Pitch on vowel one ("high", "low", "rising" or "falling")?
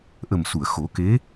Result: low